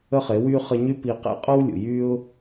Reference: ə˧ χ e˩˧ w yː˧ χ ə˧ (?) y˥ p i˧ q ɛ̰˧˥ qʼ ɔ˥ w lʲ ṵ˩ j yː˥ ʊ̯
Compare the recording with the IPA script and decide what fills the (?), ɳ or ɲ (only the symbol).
ɲ